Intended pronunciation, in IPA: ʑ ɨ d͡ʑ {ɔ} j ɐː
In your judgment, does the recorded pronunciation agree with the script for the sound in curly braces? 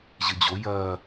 no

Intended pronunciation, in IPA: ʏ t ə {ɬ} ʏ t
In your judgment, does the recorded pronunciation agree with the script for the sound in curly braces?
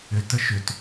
no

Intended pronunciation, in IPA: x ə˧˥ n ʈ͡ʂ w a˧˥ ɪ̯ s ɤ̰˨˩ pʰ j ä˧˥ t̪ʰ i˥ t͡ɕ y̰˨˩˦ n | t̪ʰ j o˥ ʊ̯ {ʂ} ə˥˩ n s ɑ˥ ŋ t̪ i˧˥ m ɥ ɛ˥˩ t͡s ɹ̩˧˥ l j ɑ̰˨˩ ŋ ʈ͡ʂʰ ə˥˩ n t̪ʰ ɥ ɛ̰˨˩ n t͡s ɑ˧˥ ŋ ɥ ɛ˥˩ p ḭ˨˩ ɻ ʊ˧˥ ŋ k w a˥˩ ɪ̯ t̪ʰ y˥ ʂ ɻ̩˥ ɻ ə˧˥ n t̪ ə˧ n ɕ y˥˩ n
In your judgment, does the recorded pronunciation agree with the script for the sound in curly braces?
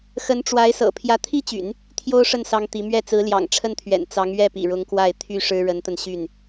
yes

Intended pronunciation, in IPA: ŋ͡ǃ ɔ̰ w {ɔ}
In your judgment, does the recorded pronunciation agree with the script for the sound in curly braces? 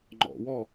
yes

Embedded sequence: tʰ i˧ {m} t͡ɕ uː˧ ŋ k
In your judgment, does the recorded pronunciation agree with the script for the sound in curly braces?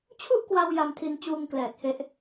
no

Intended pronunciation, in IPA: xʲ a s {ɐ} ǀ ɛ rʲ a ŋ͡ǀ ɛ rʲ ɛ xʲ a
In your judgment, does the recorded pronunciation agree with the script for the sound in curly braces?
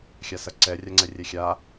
yes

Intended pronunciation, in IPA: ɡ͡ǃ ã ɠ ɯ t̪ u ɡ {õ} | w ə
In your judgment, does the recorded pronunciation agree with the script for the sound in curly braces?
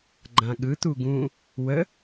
no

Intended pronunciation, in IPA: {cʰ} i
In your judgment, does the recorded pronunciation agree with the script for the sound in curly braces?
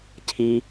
yes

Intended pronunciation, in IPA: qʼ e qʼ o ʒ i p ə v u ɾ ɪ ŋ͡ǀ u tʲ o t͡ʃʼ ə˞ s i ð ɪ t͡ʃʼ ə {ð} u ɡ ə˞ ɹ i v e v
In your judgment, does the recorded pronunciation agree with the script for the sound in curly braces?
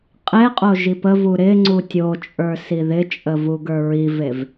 no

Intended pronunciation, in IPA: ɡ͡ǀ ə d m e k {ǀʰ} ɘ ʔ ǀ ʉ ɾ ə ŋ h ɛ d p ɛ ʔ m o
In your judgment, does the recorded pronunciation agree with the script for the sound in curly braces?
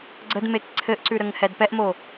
yes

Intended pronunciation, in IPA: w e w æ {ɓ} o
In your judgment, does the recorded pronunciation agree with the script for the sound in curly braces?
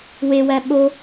yes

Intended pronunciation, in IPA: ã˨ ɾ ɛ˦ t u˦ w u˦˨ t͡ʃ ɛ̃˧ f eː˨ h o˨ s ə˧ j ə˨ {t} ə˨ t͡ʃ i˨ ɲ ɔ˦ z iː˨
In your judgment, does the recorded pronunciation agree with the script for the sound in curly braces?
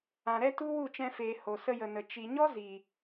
no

